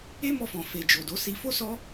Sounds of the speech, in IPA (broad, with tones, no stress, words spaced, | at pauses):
e˦mɔ˧fɔ̃˨ fe˨d͡ʒo˨do˨˦ si˧fo˦sɔ˦